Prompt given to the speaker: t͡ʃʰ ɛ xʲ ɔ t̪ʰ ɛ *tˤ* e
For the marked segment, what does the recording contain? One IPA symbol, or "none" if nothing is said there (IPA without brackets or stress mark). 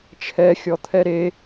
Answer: ɾ